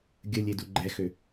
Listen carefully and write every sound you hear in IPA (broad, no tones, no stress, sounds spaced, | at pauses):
ɡʲ ə lʲ e d u ɡ͡ǃ ɛ x ø